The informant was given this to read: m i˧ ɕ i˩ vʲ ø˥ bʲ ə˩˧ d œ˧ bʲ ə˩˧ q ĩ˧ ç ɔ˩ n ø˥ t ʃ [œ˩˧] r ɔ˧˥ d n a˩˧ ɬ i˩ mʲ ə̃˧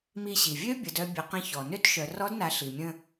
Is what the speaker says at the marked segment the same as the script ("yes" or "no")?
yes